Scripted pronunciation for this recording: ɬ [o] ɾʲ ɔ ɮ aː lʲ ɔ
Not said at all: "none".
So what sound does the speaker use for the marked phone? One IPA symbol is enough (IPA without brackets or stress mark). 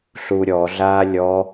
u